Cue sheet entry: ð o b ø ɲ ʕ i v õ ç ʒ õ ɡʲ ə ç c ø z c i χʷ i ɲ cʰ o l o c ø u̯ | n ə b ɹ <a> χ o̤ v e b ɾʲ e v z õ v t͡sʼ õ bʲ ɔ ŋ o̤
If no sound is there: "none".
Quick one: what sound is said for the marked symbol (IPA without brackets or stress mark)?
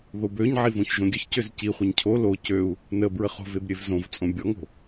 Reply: ə